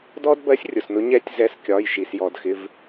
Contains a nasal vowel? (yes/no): no